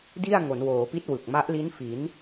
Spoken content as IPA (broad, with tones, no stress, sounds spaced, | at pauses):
d i˥˩ a̯ ŋ o˩˦ n w oː˩˦ p i˦˥ t̚ w ɯ˨˩ k̚ m a˦˥ ʔ l i˦˥ n f i˩˦ n